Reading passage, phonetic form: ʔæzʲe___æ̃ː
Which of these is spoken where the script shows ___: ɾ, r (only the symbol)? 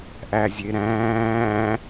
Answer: ɾ